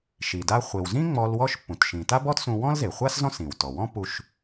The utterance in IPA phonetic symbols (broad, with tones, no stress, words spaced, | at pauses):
ʃi˩da˧ χʷe˩wzĩ˥ ŋ͡mɔ˧l wɔ˥ʃpːũ˩tʃĩ˩ ta˥bɔ˥tsũ˧ wɔ̃˥lze˩χʷa˥s zɔ̃˥sĩ˩wtɔ˩wɔ̃˥ pu˧ʃ